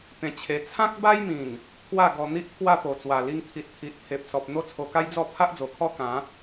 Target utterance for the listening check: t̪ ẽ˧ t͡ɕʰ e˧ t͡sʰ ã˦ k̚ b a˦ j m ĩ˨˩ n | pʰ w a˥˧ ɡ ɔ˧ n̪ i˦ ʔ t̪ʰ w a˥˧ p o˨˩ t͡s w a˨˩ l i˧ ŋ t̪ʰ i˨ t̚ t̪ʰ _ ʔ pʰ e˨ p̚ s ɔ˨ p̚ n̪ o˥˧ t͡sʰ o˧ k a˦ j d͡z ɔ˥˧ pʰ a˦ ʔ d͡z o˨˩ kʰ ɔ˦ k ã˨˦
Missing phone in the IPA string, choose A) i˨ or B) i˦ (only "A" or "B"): A